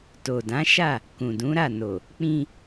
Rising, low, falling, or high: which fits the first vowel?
low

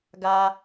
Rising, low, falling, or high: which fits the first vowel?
low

